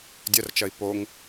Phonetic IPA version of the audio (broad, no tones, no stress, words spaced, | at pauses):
dʲɐrt͡ʃɐi̯ poŋ